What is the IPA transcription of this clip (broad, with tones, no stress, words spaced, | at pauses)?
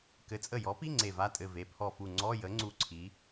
kɘ˩˥t͡sʼə˧˩jɔ˩˥pi˧˥˧ ŋ͡ǀe˧˩va˧˥˧tʼɘ˧˩ ve˩˥pʰɔ˧˩fu˧˩ ŋ͡ǀɔ˧˥˧jə˩˥ŋ͡ǀu˧˩ ǀʰi˩˥